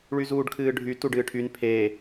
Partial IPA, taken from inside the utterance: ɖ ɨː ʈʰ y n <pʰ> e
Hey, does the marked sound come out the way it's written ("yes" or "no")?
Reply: yes